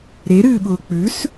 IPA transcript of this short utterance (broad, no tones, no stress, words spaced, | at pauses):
ɾeɾɨːɓʊː k͡pʉs